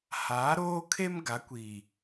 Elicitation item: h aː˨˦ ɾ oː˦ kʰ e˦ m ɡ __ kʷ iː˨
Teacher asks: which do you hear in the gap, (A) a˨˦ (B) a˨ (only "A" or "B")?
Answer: A